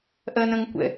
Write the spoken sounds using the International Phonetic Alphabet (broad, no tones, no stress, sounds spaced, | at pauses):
ʔ ɜ n ə̃ ŋ kʷ ɛ̰